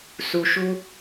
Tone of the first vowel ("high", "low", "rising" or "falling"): low